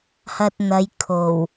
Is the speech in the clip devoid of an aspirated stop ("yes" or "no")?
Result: no